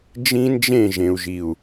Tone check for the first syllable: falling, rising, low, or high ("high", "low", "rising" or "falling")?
high